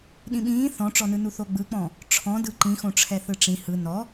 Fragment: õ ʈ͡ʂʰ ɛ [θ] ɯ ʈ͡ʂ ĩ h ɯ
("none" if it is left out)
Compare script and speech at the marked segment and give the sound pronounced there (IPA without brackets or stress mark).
θ